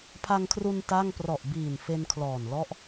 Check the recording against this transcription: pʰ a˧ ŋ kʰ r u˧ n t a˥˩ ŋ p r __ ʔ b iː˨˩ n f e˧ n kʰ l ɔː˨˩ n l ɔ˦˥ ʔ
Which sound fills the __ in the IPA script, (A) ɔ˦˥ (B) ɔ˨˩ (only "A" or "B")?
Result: B